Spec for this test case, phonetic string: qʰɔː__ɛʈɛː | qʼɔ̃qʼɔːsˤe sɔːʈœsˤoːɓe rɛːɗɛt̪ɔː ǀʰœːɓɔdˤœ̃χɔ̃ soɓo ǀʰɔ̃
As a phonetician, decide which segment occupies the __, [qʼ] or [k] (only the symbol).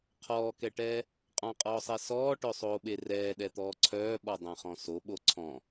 k